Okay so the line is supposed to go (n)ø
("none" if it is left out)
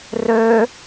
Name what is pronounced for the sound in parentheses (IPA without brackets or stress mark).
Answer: r